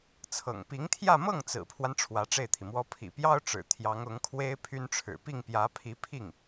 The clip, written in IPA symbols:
t͡sʰ ɤ̰˨˩ ŋ p i˧˥ ŋ t̪ʰ j ä˥˧ m ɤ˥˩ ŋ t͡s ɹ̩˨˩ pʰ w a˦ n ʈ͡ʂʰ w ä˧˥ ʈ͡ʂ e˥˩ ɪ̯ t̪ʰ i˩ m w ɔ˥ pʰ ḭ˨˩ p j ɑ˥ ʊ̯ ʈ͡ʂ ɻ̩˨˩ t̪ʰ j ɑ˧˥ ŋ ʊ˧˥ ŋ kʰ w e˥ ɪ̯ pʰ y˥ n ʈ͡ʂʰ ɻ̩˨˩ p i˥˩ ŋ p j ä˧˥ pʰ i˧˥ pʰ i˥˩ ŋ

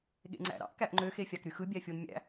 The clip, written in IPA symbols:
ɠ ḛ ŋ͡ǀ æ̰ ɾ ɑ̰ ʔ k æ ʔ ŋ͡ǃ ø x e fʲ ɑ k ɾ y x ɯ bʲ æ fʲ o n mʲ æ̰

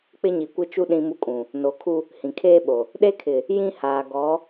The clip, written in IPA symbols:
k͡p ɪ˦ ɲ i˨ kʷ ɪ˦ t͡ʃ u˦ ɗ ĩ˦ m u˦ kʼ ũ˨ | n o˨˦ kʰ u˦ | h ĩ˨ kʰ eː˦ ɓ o˨ | ɗ e˦ kʰ ɪ˨ | j ĩ˦ h aː˨ ɡ ɔ˨˦

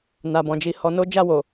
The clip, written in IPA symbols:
n a˨ b ɔ̃˨ d͡ʒ i˨˦ h ɔ˧ n o˦ d͡ʒ a˦˨ w o˨

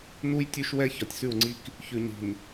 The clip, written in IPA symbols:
n u˦ j tʲ ʉ˦ ʃ w ɛ˦ ç ɒ˨ tʲ s ʉ˦˨ w ŋ͡ǀ i˦ k | ç ʉ˨ ɲ i̤˨ n

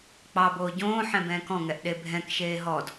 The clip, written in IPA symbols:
k͡p ɑ b oː ɟ õː ħ ɛ̃ b ɛ̃ː k ɔ̃ ŋ ɛ ʔ ɗ e bʱ ɛ̃ k ʃ eː ɦ ɔ d

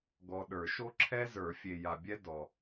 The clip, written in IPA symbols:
ɡ ɔ˨ ɗ ə˞˨˩˦ ʃ o˥ ǁʰ ɛ˥ z ə˞˨˩˦ fʲ e˨ j a˨ bʲ ɛ˥ d ɔ˨

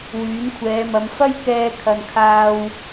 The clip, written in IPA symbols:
w yː˨˥ n kʷʰ ɛː˨˧ m ɐ˨˧ m f ɐ˥ j k ɛː˧ kʰ ɐ˧ n kʰ aː˥ w

